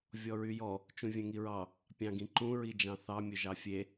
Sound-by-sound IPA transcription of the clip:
vʲ ɔ ɹ y j ɔ | t͡ʃ ũ vʲ ɛ̃ ŋ i ɹ ɑ | pʲ ɑ̃ ɡ ĩ ǃ ũ ɹ i d͡ʒ ɑ̃ θ ɑ mʲ ɵ ʒ ɑ fʲ e

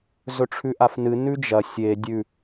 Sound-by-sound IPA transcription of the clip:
z ɵ ʈ͡ʂʰ ʉ ʔ a f n ɨ n ʉ d͡ʒ ɐ sʲ e dʲ ʉ

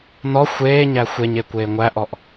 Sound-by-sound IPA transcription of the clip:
n ɔ xʷ eː ɲ æ xʷ e ɲ e kʷ eː ŋʷ æ ʔ ɔ ʔ

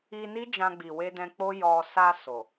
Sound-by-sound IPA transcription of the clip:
i˧ n i˦ d͡ʒ ã˧ ɡ͡b i˨ w e˧ d ɛ̃˧ k͡p o˦ j ɔ˧ s a˧ s o˨

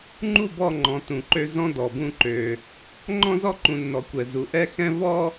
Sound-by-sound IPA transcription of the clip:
ŋ͡ǃ u˦˨ b ɔ˦˨ ŋ͡ǃ ɔ̃˨ t ũ˨ ǃ ø˦ z ɔ̃˦ d ɔ˨ b ũ˦ ǃ ø˦ | ŋ͡ǃ ɔ̃˦ z ɔ˦ ǃ ũ˨ nː ɔ˨˦ kʷ ɛ˨ z u˨ ʔ ɛ˦ x ɛ̃˦ v ɔ˦

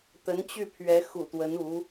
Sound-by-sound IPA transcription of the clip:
t̪ ə˧˥ n t͡ɕ y˥˩ pʰ ɥ ɛ˧˥ x ṵ˨˩ t̪ w ə˧˥ n u˧˥

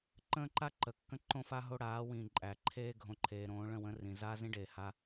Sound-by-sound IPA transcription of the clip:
ǃ ə̃ː˦ ǃ a˦ ǃ ə˨ kː ə̃˦ ǃ õ˦ f a˦ ɦ o˦ ɽ aː˨˦ w ĩ˨ ǃʼ æ˨ ǃʰ eː˦ ɡʱ õ˨ ǃʰ eː˨ ɾ õː˨˦ ɭ ə̃˦˨ w ə̃ː˦ r ĩ˨ z aː˦ z ĩ˦ ɖ eː˨ h a˦

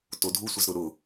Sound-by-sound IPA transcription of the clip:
t o dʱ u sʷ e z ɾ ʊ ɾ ʊ

